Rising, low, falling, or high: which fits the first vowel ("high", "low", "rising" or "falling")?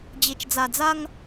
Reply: low